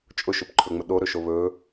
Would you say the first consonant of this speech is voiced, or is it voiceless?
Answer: voiceless